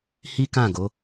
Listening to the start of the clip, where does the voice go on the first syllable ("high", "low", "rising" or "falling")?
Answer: high